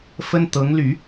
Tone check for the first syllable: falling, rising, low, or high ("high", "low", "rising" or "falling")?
high